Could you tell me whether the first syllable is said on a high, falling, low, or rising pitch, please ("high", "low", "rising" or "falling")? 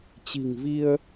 low